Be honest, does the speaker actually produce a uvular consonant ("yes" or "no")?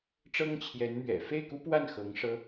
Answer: no